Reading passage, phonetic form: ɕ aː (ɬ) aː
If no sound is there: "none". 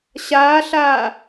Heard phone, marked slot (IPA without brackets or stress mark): ɬ